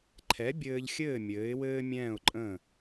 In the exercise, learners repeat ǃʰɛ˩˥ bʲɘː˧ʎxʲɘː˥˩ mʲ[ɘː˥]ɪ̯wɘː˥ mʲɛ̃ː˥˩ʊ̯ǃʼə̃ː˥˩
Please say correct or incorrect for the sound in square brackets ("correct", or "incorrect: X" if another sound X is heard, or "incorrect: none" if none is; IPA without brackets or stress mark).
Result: incorrect: ɘː˩˥